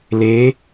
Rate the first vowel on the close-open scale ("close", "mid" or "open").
mid